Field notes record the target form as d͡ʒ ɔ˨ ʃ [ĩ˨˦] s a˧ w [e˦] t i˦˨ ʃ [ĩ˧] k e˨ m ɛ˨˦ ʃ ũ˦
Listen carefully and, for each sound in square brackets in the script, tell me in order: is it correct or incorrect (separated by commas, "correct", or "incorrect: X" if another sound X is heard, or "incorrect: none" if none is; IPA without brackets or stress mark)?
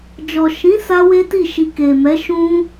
correct, correct, incorrect: i˧